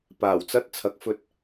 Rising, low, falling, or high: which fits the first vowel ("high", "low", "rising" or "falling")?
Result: low